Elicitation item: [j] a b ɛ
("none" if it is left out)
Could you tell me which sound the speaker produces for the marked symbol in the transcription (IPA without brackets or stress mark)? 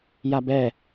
j